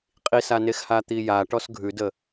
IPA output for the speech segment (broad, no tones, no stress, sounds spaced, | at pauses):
qʼ i s a n e x h a t̪ i j a ʈ ɔ s ɡʱ ʉ d ə